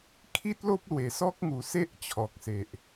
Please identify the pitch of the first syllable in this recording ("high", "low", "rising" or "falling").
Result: high